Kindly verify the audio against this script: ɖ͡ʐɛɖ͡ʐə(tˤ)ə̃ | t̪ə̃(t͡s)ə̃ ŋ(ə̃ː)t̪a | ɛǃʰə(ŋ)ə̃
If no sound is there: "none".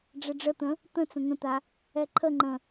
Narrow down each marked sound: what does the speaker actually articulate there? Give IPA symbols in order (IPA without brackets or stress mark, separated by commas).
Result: t̪, t͡s, ə̃, ŋ͡ǃ